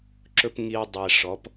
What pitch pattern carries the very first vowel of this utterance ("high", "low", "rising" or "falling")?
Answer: high